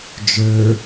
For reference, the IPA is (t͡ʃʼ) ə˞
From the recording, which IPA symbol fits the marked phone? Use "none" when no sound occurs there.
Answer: d͡ʒ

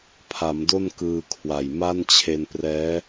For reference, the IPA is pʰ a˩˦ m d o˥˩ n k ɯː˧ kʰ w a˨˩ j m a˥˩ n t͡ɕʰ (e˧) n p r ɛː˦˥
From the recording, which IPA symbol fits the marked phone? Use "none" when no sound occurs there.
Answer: e˧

